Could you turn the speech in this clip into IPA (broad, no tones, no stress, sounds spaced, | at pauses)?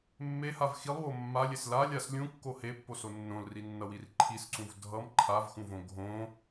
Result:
mː e h a v x i lˠ w o mː a lʲ e s l a lʲ a s lʲ ũ kː o h e pː o s o nː õ l r i nː ʌ w i r ǃʰ i s ǀ ũ v dʱ ʌ m ǃʰ a v x ũ v õ ɡʱ õ